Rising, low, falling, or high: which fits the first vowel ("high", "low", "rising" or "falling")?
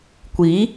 rising